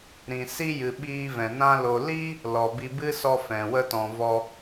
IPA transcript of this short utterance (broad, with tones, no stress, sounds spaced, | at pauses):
ɾ ĩ˨ s i˧ j ɨ˨ ɓ iː˧ v ɛ̃˨ n ã˦ l o˧ l i˦ | l ɔ˨ b i˧ b ɨ˦ s ɔ˧ f ɛ̃˨ w ə˧ t ɔ̃˨ v ɔ˧